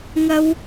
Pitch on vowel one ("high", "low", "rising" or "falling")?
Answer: high